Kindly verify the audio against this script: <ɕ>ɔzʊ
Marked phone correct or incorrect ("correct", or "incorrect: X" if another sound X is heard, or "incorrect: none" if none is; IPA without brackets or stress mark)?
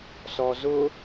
incorrect: s